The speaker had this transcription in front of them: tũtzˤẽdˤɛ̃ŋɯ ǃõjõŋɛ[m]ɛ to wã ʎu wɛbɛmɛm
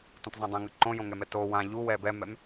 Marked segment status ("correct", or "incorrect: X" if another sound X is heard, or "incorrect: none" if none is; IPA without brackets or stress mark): correct